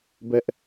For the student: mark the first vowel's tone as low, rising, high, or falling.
high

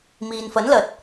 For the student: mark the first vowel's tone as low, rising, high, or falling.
low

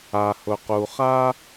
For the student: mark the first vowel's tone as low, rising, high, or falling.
low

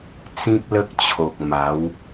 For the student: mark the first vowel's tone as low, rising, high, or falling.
high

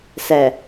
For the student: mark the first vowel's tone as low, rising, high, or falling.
low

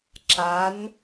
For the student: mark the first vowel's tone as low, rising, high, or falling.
rising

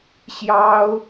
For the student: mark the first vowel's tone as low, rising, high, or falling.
high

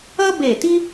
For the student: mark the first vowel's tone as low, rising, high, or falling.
high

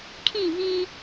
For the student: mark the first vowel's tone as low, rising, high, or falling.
falling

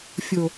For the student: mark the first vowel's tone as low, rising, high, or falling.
low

